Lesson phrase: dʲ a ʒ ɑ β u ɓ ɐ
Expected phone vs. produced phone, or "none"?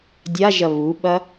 ɑ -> ɐ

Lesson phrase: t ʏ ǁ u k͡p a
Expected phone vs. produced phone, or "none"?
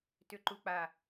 ǁ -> ǃ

